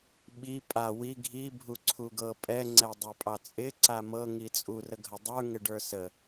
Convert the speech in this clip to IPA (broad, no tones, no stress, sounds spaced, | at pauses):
ɓ i pʼ a w i ɡʱ i bʱ u ǀʰ u ɡ ɤ pʼ ɛ ŋ͡ǀ ɛ dˤ ə˞ pʼ ɑ t͡sʼ ɪ ǀ a m ɤ ŋ i t͡sʼ u r ə ɡʱ ə dˤ ə˞ ŋ ɪ ɖ ə˞ s ə